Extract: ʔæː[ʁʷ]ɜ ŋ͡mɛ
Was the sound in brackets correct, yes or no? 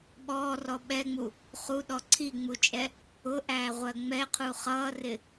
yes